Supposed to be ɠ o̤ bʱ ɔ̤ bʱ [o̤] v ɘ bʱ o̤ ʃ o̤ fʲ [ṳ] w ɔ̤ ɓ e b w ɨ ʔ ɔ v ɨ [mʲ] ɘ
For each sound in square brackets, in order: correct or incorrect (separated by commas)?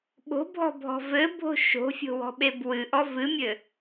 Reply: incorrect, incorrect, correct